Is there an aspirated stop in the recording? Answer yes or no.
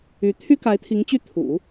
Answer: yes